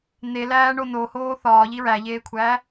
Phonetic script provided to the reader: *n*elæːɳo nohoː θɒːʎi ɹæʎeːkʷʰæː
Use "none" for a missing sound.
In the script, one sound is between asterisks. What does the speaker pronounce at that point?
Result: n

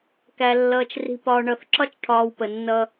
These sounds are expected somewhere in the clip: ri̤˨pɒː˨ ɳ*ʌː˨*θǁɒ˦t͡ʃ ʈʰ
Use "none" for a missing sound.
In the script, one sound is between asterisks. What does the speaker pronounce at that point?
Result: ʌ˨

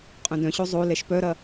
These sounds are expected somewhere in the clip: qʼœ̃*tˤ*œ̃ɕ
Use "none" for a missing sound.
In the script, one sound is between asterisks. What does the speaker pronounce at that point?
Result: d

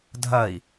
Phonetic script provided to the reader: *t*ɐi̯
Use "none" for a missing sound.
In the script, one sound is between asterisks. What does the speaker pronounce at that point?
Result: dʱ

